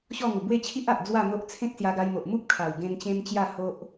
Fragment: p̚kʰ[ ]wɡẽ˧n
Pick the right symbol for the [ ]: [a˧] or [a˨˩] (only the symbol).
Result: a˨˩